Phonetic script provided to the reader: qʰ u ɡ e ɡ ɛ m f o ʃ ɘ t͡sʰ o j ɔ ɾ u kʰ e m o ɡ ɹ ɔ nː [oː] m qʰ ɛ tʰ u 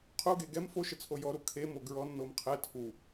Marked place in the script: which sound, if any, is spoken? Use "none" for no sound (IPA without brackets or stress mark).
o